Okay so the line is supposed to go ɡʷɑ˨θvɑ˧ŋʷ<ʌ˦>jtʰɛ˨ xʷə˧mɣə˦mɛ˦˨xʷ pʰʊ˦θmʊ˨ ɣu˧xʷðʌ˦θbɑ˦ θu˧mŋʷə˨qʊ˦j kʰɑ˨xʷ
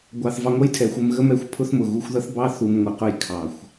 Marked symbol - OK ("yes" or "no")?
yes